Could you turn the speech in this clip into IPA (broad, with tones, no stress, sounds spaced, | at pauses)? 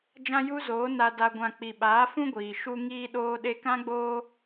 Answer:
d͡ʒ ã˦ j u˦ z oː˨˦ n a˨ d a˨ ɡʷ ã˨ k͡p i˨ ɓ aː˨˦ f ũ˦ ɡʷ iː˨ ʃ u˧ ŋ iː˦ ɗ oː˧ ɗ e˧ k ã˦ ɡ͡b oː˦